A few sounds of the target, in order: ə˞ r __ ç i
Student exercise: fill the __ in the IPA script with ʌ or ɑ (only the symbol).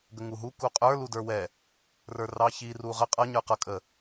ɑ